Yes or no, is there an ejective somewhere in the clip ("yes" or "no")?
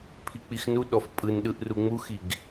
yes